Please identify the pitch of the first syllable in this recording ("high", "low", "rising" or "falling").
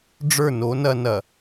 falling